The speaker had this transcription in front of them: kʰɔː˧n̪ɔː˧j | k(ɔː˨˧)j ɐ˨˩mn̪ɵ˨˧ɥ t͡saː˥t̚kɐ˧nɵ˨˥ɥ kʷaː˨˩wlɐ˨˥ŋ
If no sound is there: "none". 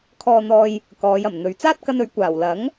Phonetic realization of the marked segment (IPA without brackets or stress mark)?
ɔː˨˧